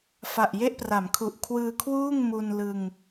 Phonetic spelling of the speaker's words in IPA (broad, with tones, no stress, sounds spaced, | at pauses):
f a˨˩ ʔ j e˥˩ ʔ p r a˩˦ m kʰ u˨˩ ʔ kʰ w ɯː˧ kʰ w uː˥˩ ŋ m u˧ n l ɯ˧ ŋ